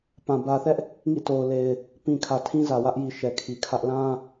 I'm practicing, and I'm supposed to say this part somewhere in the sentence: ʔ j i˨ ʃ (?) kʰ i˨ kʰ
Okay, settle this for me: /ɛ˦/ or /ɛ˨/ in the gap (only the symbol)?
ɛ˨